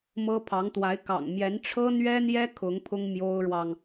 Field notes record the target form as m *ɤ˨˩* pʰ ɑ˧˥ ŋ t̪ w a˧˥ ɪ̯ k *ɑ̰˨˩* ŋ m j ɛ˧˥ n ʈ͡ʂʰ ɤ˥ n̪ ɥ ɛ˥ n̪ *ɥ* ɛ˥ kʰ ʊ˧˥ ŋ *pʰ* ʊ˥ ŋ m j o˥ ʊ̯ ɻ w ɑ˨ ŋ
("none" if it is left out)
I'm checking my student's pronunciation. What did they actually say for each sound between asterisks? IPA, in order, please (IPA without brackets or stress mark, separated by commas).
ɤ˥, ɑ̰˨˩, j, pʰ